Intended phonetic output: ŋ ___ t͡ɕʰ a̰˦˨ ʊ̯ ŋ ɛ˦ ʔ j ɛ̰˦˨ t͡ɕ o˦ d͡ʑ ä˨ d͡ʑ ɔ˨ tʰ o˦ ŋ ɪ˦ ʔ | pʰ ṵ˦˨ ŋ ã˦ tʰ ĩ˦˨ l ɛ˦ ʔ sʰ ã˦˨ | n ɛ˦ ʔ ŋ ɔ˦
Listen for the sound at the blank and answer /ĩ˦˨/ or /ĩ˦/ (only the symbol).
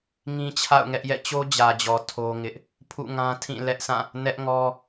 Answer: ĩ˦